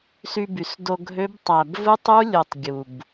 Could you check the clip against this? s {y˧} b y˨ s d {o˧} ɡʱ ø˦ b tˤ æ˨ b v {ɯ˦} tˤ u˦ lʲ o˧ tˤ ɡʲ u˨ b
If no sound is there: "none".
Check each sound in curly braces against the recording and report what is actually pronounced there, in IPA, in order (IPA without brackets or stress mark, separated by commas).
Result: y˧, o˧, ɯ˦